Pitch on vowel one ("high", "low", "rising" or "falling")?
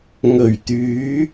low